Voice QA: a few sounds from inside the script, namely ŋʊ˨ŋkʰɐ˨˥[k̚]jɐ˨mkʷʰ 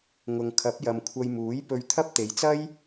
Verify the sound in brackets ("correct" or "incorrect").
incorrect